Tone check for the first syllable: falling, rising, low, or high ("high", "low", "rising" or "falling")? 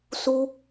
high